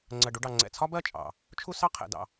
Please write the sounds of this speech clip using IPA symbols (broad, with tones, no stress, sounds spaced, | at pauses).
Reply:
ŋ͡ǀ ɜ˨ ɖ u˧ ɖ ɑ˨ ŋ͡ǀ ɛ̰˨ t͡sʰ ɒ˦ b ɜ˦˨ t͡ʃʼ ɑ̰˨ | t͡ʃʰ u˦ s ɑ˦ qʰ ɛ̰˨ d ɑ̰˨